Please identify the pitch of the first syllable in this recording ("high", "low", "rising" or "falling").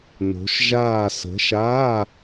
rising